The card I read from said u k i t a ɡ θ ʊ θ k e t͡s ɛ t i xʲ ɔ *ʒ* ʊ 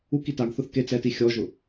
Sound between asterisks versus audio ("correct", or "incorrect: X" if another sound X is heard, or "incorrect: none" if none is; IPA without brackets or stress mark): correct